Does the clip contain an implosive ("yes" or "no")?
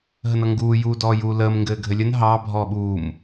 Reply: yes